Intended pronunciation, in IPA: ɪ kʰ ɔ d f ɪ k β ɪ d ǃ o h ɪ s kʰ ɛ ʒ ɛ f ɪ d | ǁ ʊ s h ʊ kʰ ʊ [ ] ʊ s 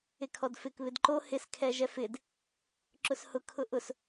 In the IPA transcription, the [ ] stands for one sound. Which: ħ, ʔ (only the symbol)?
ʔ